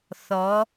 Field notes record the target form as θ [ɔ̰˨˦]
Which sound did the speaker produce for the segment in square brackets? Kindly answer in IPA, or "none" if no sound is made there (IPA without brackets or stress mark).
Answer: ɔ˨˦